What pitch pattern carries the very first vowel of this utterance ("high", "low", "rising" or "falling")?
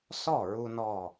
falling